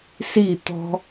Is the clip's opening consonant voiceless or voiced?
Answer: voiceless